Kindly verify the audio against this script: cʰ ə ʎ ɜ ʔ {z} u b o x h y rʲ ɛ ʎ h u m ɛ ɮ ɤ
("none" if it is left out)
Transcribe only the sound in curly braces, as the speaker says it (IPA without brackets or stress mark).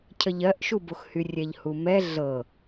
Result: ʃ